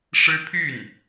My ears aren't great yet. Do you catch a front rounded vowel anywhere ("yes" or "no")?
yes